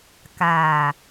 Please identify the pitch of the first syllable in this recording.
low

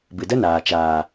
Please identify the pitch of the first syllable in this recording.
low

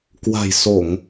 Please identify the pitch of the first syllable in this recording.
low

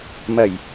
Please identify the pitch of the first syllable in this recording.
low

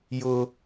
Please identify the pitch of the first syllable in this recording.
high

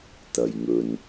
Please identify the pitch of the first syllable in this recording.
low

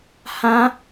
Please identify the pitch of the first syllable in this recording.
high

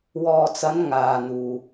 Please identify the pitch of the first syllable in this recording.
low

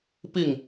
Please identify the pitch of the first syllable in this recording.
falling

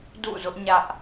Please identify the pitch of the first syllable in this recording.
falling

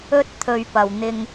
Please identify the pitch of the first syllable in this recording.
high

